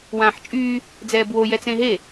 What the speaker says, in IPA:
w ãː ħ t͡ʃʼ yː | d͡z ɛː b w o j ɛ t͡s ẽ ɦ e

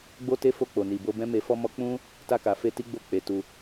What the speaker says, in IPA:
ɡ͡b o˦ t e˦ f o˧ k͡p o˨ n i˨ b o˧ b ɛ̃˦ m e˧ f ɔ˦ m ɔ˦ k͡p ũ˦ | t a˧ k a˨ f e˧ t i˦ ɡ͡b o˦˨ k͡p e˨˦ t u˧

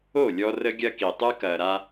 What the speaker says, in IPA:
o˦˨ lʲ ɔ˦ r ə˦ ɡʲ ɐ˦ k i˨ tˤ ɯ˦ k ɐː˨ ɾ a˦

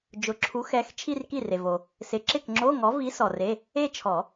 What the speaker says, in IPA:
d͡ʒ ʊ˨˩˦ ǁʰ u˨˥ x ɛ˨˥ x t͡ʃʰ i˥˧ r k i˥˩ r e˨ v o˨ | s ɪ˨˥ ǁ ɪ˥˩ k ŋ͡ǁ o˧˥˧ ŋ ɔ˨˥ v i˨˥ s ɔ˨ r e˧˥˧ | e˥˧ t͡ʃʰ ɔ˨˩˦

